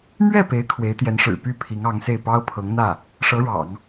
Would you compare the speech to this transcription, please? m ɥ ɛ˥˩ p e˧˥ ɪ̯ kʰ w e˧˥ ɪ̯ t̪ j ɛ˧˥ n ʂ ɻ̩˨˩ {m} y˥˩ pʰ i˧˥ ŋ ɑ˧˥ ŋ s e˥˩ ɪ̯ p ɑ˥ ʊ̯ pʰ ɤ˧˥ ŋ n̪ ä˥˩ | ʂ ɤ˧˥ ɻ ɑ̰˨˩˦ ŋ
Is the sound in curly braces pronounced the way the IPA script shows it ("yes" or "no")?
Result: no